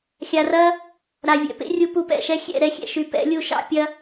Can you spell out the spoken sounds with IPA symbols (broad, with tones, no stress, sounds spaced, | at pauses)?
xʲ a˨ r ɐ˦ | ɾ a˨ vʲ ɛ̰˧ p ḛ˦ rʲ u˧ p u˧ p ɛ̰˦˨ ʃ ɛ˦ xʲ ɛ̰˦˨ ɾ ɛ˦ xʲ ɛ̰˨ ʃ y˧ p ɛ̰˨˦ lʲ u˧ ʃ ɑ̰˦ pʲ ɐ˦